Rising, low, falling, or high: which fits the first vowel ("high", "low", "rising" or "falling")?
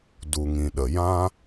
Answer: low